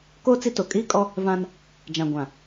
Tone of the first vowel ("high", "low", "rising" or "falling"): high